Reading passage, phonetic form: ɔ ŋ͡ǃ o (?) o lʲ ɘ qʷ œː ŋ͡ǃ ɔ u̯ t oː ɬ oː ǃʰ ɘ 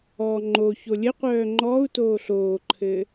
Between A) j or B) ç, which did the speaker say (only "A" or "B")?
B